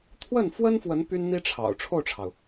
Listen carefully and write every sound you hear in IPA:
t̪ʰ w ə˥˩ n f w ə˥ n f w ə˧˥ n p y˥ n n̪ i˥ ʈ͡ʂʰ ɑ̰˨˩ ʊ̯ ʈ͡ʂʰ o˥˩ ʊ̯ ʈ͡ʂʰ ɑ˩ ʊ̯

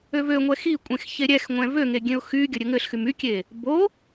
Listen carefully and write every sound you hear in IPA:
ø v ø ŋʷ ɛ x i kʷʼ ẽ x ç e ɾʲ ɛ x ŋʷ ɛ̃ v ø ŋ e ɡʲ ẽ ʊ̯ x y ɡʲ ə ɾʲ ɘ ŋ ɘ ɬ x y m y kʲ e | b o

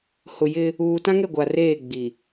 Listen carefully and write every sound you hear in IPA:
h ʊ˨ j ɪ˦ | uː˨ t ã˦ ŋ ɛ˦˨ ɡʷ a˨ r eː˦˨ ɡ͡b i˨

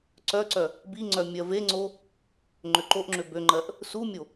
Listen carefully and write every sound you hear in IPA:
ǀ œ ǀ œ | b i ŋ͡ǀ œ mʲ ɜ v e ŋ͡ǀ o | ŋ͡ǃ ø ǃ o ʔ ŋ͡ǁ ø b ø ŋ͡ǃ ɜ ʔ | s u mʲ o

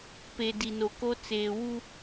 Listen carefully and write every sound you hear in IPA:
p e˨ d i˨ n o˨ k o˦ t͡s eː˨ w u˦

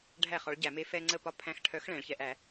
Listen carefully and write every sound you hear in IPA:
ɖʱ æ˥˩ χ ɒ˨˥ ɭ ɟ æ˧˩˧ m e˦ f ɛ˦ ŋ͡ǀ ə˥˩ p ɒ˦ pʰ æ̃˨˥ x ʈʰ œ˨˥ x ɭ ɛ̃˧˩˧ ɭ ç ɛ˧˩˧ ʔ æ˧˩˧

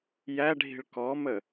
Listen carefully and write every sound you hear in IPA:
j æ ɖʱ i̤ ɭ k ɔ m ə

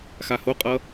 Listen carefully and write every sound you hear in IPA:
x a h o qʼ ʌ

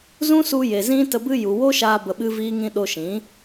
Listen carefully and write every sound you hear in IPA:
z ũ˦ s u˧ j e˨ z ĩ˦ t ə˧ b ɨ˦ j u˨ w o˦ ʃ aː˧ b ə˧ ɓ ɨ˦ v iː˦ ŋ ĩ˦ ɗ o˧ ʃ ĩ˨˦

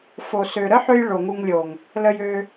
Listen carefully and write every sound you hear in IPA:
f o˨ s ø˨ ɾ ə˦ ħ ø˧ j ɭ o˨ ŋ u˧ ŋ lʲ o˨ ŋ | l ə˧ j ø˧

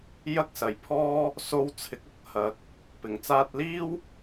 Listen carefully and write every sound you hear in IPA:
j ɐ˥ k̚ s ɐ˨ j pʰ ɔː˥ | s o˥ w t͡sʰ ɪ˨˥ k̚ ʊ˥ k̚ h ɐ˨˥ k̚ | p ɪ˨˩ ŋ t͡s aː˧ t̚ l iː˥ w

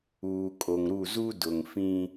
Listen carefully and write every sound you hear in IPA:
uː˨ kʼ o˨ ŋ ɾ u˦˨ z u˦ d ʊ˨ ŋ f ĩ˦

